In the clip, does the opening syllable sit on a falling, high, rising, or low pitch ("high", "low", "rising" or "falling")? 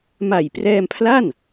low